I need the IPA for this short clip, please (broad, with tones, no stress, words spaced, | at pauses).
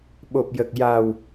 ɓo˨˩p̚jə˨˩k̚ja˨˩w